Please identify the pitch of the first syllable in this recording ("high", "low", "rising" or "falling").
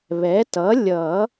rising